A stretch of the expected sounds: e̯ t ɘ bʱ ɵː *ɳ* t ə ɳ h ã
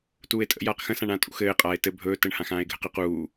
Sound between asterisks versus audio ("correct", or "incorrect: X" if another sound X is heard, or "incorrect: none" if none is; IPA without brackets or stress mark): incorrect: none